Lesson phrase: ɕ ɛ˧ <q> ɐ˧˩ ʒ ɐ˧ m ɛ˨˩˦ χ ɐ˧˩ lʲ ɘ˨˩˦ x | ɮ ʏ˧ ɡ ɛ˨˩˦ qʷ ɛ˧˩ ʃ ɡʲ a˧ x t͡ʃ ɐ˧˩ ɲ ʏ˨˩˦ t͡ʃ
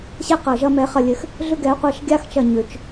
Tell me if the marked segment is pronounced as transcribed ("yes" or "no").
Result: yes